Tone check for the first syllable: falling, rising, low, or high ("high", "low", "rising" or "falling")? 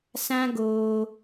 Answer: high